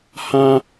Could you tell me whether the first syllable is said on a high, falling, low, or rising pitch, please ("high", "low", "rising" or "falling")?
high